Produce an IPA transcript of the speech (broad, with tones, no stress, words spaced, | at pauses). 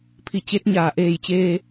pʰi˧˩ t͡ɕe˧˥t̚ɲaː˧˩ʔeː˧˩jt͡ɕeː˧